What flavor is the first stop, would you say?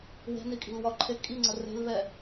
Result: ejective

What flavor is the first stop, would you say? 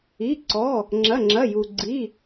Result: click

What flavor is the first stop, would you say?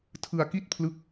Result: aspirated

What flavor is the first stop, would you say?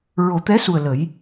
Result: plain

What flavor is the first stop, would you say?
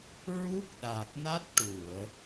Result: plain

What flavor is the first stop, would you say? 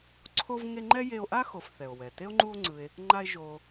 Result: click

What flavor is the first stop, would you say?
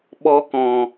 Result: implosive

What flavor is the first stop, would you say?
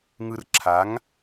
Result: click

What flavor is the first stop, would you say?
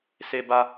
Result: plain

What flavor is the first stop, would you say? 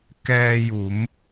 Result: plain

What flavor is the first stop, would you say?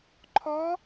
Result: click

